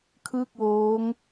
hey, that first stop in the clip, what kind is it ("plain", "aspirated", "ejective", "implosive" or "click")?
aspirated